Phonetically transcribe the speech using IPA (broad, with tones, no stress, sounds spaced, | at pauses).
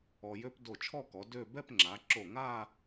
ɔ˧ j ø˥ p d o˧˩ t͡ʃʰ ɔ˥˧ k ɔ˩˧ d ø˥˧ b ɛ˥˧ p ŋ͡ǁ a˩˧ ǁ o˧˩ ŋ a˥˧